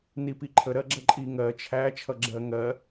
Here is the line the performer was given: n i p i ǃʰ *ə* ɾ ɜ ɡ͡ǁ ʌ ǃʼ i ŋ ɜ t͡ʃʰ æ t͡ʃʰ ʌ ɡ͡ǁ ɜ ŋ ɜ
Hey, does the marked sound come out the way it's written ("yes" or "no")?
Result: yes